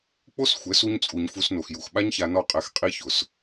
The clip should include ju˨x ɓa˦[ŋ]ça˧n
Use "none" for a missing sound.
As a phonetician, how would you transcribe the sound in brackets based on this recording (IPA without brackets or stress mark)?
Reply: ɲ